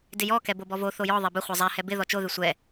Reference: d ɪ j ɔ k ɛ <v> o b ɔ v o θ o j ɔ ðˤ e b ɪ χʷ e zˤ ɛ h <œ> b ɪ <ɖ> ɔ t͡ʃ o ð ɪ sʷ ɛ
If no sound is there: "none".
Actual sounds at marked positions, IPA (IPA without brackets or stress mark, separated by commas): b, ɛ, ð